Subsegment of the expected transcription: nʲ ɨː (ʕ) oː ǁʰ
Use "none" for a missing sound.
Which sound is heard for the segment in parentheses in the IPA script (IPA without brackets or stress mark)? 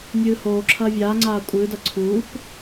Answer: h